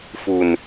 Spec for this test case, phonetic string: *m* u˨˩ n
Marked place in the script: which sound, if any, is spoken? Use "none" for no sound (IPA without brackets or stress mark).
f